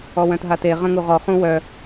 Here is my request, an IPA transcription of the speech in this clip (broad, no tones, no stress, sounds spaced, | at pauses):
ɔ w œ̃ t ɦ a t e ʁ ə̃ ŋ u ʁ ɔ χ ũ w œ